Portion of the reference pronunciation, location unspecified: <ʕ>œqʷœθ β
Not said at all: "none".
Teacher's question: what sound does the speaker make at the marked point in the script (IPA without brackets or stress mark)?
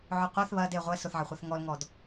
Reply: ʕ